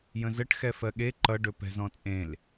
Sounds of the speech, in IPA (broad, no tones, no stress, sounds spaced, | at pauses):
j ə̃ z ə ʈ x ɛ f ɜ ɠ e ǃ ʌ ɖ ɵ p ɛ̤ z ɔ̃ t͡sʼ ẽ l